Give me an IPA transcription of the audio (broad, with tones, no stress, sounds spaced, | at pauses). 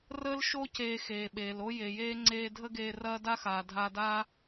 r əː˦ l ʃ o˦ c eː˧ x eː˨ ɓ eː˨ l o˦ j e˨ j eː˦ ŋ͡ǀ eː˧ dʱ ə˦ ɡ eː˧ r ɐː˦ d a˦ x aː˨ dʱ a˧ d aː˦